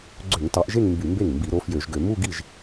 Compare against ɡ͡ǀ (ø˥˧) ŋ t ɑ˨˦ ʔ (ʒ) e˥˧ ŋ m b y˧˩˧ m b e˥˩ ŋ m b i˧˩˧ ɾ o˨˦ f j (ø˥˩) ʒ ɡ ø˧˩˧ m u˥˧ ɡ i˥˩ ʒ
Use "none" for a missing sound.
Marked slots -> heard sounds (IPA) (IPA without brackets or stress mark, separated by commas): ø˧˩˧, ʒ, ø˧˩˧